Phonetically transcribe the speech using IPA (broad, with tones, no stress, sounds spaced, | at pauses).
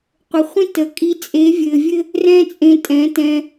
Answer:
qʷ ə˨ χʷ ĩ˦ t ə˨ kʼ i˧ t͡sʼ e˨˦ vʲ ɘ˨ vʲ ɘ˦ | r ɛ̃˦ t͡sʼ ẽ˧ tʼ ɛ̃˨˦ t ɛ̃˧